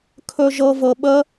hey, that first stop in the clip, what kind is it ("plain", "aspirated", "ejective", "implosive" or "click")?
aspirated